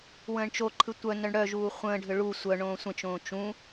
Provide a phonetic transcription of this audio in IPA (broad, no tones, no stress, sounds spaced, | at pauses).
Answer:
w ə̃ː ɳ t͡ʃ o ǃʰ ɯ tʷ œ n œ ɳ ɽ œ ʒ uː χʷ ə̃ː ɖʱ ʏ ɭ u sʷ œ ɳ õː sʷ ə̃ t͡ʃ õː t͡ʃ ũ